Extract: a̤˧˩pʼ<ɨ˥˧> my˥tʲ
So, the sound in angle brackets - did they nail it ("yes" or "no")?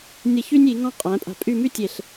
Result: no